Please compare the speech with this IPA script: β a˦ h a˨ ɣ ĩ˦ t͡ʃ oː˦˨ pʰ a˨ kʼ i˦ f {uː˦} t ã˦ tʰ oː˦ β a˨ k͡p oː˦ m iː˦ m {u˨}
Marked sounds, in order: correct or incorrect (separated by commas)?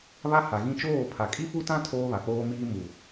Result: incorrect, correct